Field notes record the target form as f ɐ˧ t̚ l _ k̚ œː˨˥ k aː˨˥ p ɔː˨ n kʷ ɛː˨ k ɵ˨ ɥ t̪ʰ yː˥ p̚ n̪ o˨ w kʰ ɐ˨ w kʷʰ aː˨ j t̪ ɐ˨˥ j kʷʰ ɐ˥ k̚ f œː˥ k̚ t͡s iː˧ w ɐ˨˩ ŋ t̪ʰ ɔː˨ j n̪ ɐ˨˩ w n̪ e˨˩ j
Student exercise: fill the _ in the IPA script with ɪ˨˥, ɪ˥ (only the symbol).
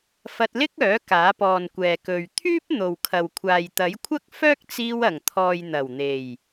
ɪ˥